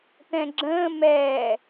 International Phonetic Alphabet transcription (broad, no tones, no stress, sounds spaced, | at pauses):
t̪ ɛ̃ ɡ͡ǁ ə̃ː m ɛː